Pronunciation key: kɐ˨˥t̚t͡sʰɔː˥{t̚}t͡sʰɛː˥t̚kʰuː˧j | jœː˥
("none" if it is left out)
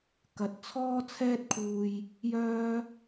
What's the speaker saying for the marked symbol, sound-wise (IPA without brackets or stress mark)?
none